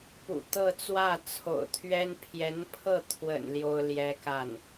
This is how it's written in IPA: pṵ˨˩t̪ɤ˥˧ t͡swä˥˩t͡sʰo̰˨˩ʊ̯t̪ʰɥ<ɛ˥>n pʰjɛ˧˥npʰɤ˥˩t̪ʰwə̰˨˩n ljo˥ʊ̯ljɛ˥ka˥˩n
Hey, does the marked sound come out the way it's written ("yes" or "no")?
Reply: yes